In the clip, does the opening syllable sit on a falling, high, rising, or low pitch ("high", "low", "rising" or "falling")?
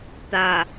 low